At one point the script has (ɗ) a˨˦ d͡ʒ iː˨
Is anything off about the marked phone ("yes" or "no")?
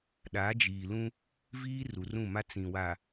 no